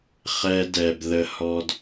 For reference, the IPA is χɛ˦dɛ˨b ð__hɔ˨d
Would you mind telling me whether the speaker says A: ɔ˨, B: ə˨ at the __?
B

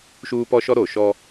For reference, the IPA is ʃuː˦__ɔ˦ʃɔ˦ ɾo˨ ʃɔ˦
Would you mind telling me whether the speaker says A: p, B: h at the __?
A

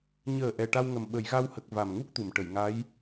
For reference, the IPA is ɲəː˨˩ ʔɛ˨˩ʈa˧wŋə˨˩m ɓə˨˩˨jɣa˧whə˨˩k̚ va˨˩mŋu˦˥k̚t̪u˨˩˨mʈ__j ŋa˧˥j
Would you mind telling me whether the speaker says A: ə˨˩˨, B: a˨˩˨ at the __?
A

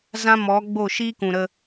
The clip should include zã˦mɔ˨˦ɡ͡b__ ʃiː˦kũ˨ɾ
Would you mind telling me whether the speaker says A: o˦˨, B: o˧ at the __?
A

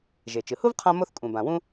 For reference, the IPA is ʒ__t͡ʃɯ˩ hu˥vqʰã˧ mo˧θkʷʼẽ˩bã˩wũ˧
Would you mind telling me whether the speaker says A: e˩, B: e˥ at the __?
A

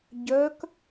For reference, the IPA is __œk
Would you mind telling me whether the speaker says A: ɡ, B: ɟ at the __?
B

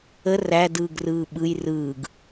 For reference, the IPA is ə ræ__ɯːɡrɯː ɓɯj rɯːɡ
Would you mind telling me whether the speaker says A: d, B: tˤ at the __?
A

